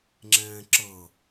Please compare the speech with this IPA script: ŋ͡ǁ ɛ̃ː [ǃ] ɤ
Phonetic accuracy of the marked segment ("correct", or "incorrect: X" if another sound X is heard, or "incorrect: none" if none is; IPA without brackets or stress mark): incorrect: ǁ